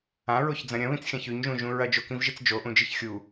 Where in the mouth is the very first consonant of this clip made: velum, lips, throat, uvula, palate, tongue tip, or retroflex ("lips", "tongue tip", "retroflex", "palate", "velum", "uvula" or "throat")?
tongue tip